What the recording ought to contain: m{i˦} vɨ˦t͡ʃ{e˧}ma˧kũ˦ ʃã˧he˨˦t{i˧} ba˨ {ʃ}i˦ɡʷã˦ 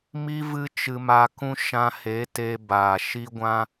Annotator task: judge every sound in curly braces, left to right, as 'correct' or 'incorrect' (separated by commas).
correct, incorrect, incorrect, correct